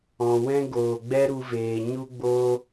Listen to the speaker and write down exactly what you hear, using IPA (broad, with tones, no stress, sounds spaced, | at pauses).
ɔ̃˨ w ɛ̃˦ ɡ oː˨ ɡ͡b ɛ˦ ɾ u˧ v eː˨ ɲ u˦ ɡ͡b oː˦